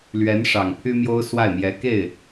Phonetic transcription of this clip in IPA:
l ɥ ɛ˧˥ n ʂ ɑ˨˩ ŋ pʰ y˥ m j o˥ ʊ̯ s w a˥˩ ɪ̯ m j ɛ˧˥ k e˥˩ ɪ̯

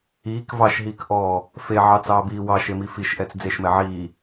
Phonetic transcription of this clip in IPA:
iː k v ɑ ʃ ɦ iː k ʔ ɔː | f e ʕ ɑ t͡s ɑː b iː w ɑ ʃ e m i f i ʃ ʔ ɛ t͡s d͡z e ʃ m ɛ ʕ iː

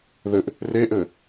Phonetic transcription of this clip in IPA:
ð ɘ ʔ | r e ʔ ɘ

